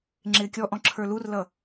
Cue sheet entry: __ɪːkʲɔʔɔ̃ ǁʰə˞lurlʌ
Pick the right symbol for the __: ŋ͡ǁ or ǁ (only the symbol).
ŋ͡ǁ